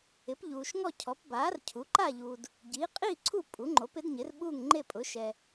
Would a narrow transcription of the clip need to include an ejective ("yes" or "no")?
yes